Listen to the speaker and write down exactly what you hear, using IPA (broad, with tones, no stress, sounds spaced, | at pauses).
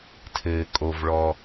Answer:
tʰ ɘː˩ kʼ o˩ v ɭ ɔ˩